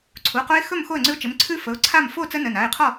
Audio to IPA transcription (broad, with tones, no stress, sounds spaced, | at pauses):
ǀʰ u˩˧˩ q o˦ ɪ̯ x ɵ˥˨ m x o˥˨ ə̯ ŋ͡ǀ ʉ˦ ʊ̯ t͡ʃ ɘ˩˧˩ m ǀʰ ʉ˦ f ə˩˧˩ ʊ̯ ǀʰ a˥˨ m f o˥˨ t͡s ə˦ n ə˩˧˩ n a˩˧˩ ɪ̯ qʰ ɔ˥˨